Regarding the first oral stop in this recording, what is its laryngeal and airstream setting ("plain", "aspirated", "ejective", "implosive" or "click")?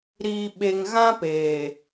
implosive